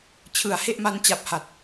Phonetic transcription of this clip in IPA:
t͡ɕʰ ɯ˨˩ a̯ h e˥˩ ʔ m a˦˥ n t͡ɕ a˨˩ p̚ h a˨˩ t̚

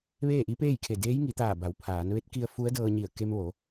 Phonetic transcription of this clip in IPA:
ʋ eː˥˨ ʔ i˧˥ p eː˥˨ j kʰ e˧˩ d eː˧˥ j ŋ i˩˧ t̪ aː˧˩ b a˩˧ w pʰ aː˩˧ n ʋ e˧˥ t̚ k i˧ ə̯ f u˧˥ ə̯ d ɤː˧ ɲ i˧˩ ə̯ k e˧ m ʋ o˩˧

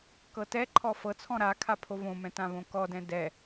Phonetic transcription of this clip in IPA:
k ɤ t ɛ ǃʰ ɔ f ɤ t͡sʰ ɔ̃ ɾ a kʰ a pʰ o v õ m ɛ̃ t ã v õ k ɔ d ɛ̃ d ɛ

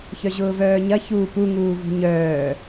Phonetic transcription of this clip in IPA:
ç œ ʑ ʊː v œː ɲ ɐ ç uː p u ŋ uː v ṳ ɲ œː

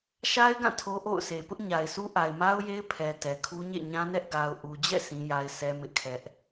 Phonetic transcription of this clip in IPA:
ʃ a˦ ɪ̯ ɡ ã˦˨ tʰ o˦ ʔ o̰˦˨ ʊ̯ sʰ e˨ p ʊ˦ ʔ ɲ a˨ ɪ̯ sʰ u˦ ʔ a˨ ɪ̯ m a˦ ʊ̯ j e˦ ɪ̯ pʰ ɛ˨ t ɛ˨ kʰ u˦ ɲ ḛ˦˨ ɲ ã˦ n ɛ˦ ʔ ɡ a˨ ʊ̯ ʔ u˨ d͡ʑ ɛ̰˦˨ sʰ ĩ˦ j a˦ ɪ̯ sʰ ɛ˦ m ɪ˦ ʔ kʰ ɛ˦ ʔ

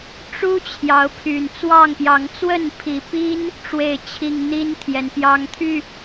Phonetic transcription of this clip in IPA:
ʈ͡ʂ u˦ t͡ɕʰ j ɑ˨˦ ʊ̯ pʰ y˨˩ n t͡s w ɑ˥˨ ŋ p j ɑ˨˦ ŋ t͡s w ə˥˨ n pʰ i˨˦ p i˦ n | ʈ͡ʂ w e˥˨ ɪ̯ t͡ɕʰ i˥˨ ŋ n̪ i˦ n t̪ʰ j ɛ˨˦ n p j ɑ˦ ŋ t̪ʰ y˥˨

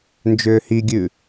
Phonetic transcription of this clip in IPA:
n d͡ʒ ʏː h i ɡʲ ʉ

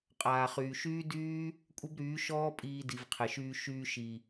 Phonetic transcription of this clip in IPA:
qʼ aː˨ χ yː˨ ʃ yː˦ d yː˦ | kʷʼ ə˦ b ɾ yː˨˦ ʃ ɔː˦ pʼ iː˧ d i˨ v qʰ ɪ˨ ʃ yː˧ ʃ yː˧ ʃ i˨

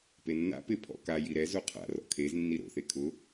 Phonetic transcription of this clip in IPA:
p e nː a̰ p ɪ pʰ ɔ̰ k a j i ɾ ɛ z o qʰ a̰ r ɔ̰ kʰ e z nː i ɾ o̰ θ e kʰ ʊ

